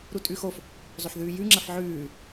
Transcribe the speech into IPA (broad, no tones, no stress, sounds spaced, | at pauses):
ɾ u tʼ ʉ x o f | zˤ ɵ ħ ð ʉː j ʉ ŋ͡ǁ ɐ f ʕ ʉː